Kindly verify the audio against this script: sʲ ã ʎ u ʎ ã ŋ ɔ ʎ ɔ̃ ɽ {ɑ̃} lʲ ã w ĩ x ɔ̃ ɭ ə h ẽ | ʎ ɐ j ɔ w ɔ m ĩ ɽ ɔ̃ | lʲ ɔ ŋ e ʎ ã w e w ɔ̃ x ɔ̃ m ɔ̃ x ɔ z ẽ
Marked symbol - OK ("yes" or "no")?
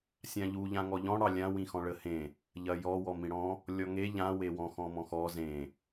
no